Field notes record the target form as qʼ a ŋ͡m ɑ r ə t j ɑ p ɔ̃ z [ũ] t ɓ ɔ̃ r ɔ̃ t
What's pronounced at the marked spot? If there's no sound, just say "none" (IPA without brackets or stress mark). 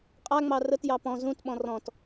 ũ